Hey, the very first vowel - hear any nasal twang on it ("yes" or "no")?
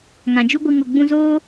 yes